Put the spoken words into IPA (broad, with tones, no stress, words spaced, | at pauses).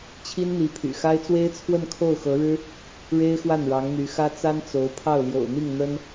t͡ɕʰi˥nn̪i˧˥pʰy̰˨˩xa˥ɪ̯ t͡swe˥ɪ̯t͡sʰwə˥˧nkʰo˥˩ʊ̯ xɤ˧˥ɻɻ̩˥ | ɻe˥ɪ̯xwa˥˩n ɻɑ˧˥ŋn̪y˧˥xä˥ t͡sa˥n t͡so˧˥ʊ̯ pʰɑ˥˩ʊ̯ljo̰˨˩ʊ̯n̪i˥˩ŋ n̪ə˥n